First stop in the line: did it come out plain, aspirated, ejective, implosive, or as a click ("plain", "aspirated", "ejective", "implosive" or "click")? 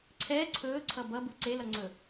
click